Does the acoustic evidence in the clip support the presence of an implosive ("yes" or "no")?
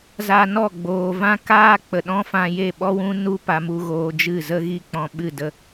yes